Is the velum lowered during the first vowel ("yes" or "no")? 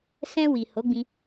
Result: yes